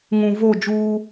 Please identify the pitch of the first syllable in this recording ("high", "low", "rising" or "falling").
low